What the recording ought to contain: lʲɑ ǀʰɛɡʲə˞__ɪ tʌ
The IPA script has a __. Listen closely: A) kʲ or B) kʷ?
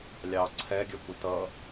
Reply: B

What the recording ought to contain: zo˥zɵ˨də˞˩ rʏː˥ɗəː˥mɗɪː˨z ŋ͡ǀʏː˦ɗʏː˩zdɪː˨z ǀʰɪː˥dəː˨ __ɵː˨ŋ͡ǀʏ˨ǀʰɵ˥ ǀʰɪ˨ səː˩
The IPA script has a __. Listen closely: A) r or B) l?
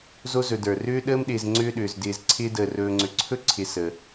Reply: A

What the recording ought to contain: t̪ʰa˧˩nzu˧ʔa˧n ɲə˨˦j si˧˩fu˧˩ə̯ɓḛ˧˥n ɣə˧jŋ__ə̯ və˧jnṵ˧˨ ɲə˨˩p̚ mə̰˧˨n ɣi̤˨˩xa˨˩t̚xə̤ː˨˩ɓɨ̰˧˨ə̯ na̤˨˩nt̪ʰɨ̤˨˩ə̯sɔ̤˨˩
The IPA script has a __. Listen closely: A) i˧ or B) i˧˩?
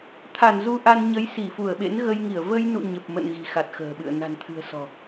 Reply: B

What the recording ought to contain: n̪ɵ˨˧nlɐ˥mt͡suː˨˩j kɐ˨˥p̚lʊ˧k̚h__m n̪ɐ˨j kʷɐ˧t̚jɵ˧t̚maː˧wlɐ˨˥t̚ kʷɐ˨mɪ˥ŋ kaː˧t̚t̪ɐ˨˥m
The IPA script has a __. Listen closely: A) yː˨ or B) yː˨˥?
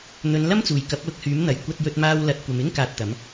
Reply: B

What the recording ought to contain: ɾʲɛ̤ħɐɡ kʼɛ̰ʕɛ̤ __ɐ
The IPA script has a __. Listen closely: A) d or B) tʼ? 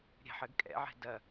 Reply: A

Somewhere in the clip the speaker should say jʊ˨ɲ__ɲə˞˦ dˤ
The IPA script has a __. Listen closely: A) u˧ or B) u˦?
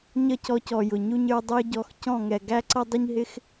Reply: B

